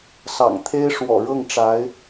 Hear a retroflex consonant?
yes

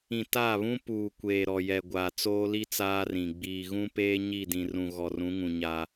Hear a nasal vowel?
yes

